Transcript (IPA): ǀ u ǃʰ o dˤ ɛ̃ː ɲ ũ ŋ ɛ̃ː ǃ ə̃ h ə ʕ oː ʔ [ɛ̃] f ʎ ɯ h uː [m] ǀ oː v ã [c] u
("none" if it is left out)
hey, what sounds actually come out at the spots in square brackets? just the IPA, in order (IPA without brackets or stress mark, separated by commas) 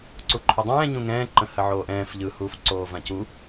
ɛ̃ː, f, c